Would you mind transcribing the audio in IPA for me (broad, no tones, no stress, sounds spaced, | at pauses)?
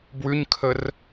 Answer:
b w ʉ ɲ kʰ ə r